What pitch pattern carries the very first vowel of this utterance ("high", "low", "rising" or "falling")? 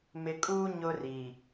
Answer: low